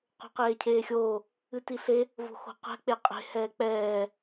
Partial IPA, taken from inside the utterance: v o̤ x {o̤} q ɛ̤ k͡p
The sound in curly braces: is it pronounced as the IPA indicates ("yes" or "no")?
yes